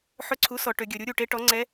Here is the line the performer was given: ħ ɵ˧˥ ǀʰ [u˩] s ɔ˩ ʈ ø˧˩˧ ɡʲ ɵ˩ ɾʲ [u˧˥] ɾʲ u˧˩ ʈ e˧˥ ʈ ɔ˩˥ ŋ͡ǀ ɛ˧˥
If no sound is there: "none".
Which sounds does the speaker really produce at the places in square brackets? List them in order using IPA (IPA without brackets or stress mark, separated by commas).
u˩˥, u˧˥